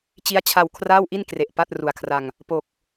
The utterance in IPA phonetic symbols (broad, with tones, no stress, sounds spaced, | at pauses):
t͡ɕ i˦˥ a̯ t͡ɕʰ a˧ w kʰ r aː˥˩ w ʔ i˥˩ n k r e˨˩ ʔ p a˥˩ t̚ r u˨˩ a̯ kʰ r a˧ ŋ | p o˨˩ k̚